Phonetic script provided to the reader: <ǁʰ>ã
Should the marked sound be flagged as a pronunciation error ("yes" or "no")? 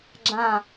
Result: yes